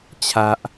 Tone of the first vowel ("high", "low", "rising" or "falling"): low